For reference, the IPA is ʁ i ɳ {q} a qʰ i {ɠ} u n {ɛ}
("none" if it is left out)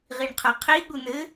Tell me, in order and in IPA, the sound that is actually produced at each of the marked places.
qʰ, ɠ, ɘ

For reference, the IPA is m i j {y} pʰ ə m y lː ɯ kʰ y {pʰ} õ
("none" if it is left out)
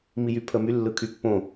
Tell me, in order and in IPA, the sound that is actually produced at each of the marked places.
y, pː

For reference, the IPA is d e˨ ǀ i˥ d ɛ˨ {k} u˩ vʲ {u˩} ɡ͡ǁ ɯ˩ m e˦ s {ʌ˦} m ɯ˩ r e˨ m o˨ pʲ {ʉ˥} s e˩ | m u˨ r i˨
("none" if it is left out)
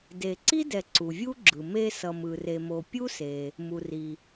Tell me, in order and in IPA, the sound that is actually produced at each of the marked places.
ǀ, u˥, ʌ˨, u˥

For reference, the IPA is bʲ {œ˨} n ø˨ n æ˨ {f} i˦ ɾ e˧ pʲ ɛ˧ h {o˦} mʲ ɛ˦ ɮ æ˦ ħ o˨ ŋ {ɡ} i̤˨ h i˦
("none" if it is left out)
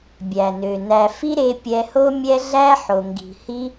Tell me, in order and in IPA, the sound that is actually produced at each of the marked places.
æ˨, f, o˦, ɡ

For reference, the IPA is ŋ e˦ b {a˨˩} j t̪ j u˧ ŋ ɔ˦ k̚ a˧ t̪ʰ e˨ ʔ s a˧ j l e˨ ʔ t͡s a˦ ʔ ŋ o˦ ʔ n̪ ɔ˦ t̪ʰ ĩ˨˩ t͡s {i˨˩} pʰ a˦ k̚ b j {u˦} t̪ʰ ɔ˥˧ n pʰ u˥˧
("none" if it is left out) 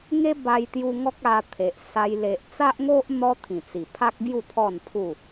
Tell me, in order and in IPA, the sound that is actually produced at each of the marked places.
a˧, i˨˩, u˥˧

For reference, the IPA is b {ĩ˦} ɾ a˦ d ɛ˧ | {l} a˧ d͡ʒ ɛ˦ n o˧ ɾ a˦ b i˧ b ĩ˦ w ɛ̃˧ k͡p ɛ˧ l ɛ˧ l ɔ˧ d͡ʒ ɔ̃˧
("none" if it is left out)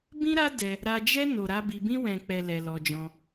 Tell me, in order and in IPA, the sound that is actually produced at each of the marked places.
ĩ˦, ɾ

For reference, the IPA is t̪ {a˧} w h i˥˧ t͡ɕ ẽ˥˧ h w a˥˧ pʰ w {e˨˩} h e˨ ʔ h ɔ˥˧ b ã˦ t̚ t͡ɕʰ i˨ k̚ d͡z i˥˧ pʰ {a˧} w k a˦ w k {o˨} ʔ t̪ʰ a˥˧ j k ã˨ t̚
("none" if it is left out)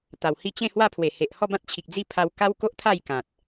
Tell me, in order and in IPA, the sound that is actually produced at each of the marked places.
a˨˩, e˨˩, a˧, o˦

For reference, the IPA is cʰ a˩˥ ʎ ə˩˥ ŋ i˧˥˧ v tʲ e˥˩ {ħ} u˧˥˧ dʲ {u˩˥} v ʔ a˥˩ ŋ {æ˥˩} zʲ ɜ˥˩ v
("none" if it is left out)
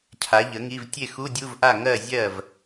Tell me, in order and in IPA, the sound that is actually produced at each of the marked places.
x, u˧˥˧, ɜ˥˩

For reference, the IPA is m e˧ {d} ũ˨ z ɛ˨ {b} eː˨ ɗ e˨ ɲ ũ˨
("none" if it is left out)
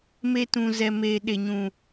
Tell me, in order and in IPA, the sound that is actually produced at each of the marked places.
t, m

